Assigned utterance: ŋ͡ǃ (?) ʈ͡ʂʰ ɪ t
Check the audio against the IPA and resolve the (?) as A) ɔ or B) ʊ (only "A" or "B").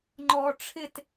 A